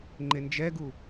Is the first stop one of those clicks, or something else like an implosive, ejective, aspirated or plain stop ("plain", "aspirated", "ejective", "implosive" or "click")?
click